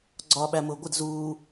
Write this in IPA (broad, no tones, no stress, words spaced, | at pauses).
ɡ͡ǀɒːɓæmʊːɡʷɪd zuː